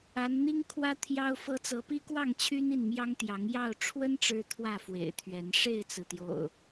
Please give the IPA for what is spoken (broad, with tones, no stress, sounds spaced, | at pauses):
a˨˦ n n̪ i˦ ŋ kʰ w ä˦ t̪ʰ j ɑ˦ ʊ̯ f ɤ˦ t͡s ɤ˨˦ p i˦ k w ɑ˥˨ ŋ t͡ɕʰ y˦ n i˥˨ n m j ɑ˦ ŋ t̪ j ɑ˨˦ ŋ j ɑ˥˨ ʊ̯ ʈ͡ʂʰ w ə˦ n ʈ͡ʂ ɻ̩˦ t̪ʰ w ä˥˨ f w ḛ˨˩ ɪ̯ t̪ʰ ɥ ɛ˨˦ n ʂ e˥˨ ɪ̯ t͡s ɹ̩˩ t̪ j o̰˨˩ ʊ̯